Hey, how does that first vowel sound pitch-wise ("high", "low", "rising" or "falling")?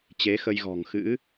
rising